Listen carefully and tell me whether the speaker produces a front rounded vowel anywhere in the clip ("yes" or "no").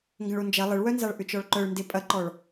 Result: yes